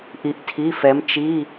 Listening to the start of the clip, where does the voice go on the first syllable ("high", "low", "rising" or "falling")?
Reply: rising